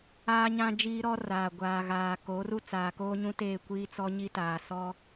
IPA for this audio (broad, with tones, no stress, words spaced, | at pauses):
aː˦ɲã˦d͡ʒiː˦ɾɔ˦ raː˨ɡʷaː˨ɣaː˨ ko˨˦ru˦ t͡saː˨koː˦ɲũ˦teː˦˨ kʷiː˦t͡sɔ˦ɲi˦taː˨ sɔ˦